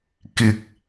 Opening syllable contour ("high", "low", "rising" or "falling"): low